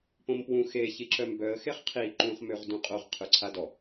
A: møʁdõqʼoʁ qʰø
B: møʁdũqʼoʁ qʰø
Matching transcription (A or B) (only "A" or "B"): B